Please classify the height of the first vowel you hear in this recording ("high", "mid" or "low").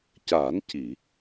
low